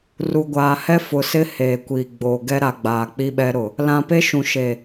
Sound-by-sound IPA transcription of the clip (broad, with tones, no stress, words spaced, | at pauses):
ru˨ɡʷaː˨hɛ˦ fʊ˨sɪ˦ heː˨kʷiː˨ ɡ͡boː˨ ɡɛ˦ɾa˨ ɡ͡baː˨k͡pi˦ɓɛ˦ ɾʊ˨ | lã˨pe˦ ʃũ˨ʃe˨